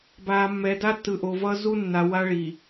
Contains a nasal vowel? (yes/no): no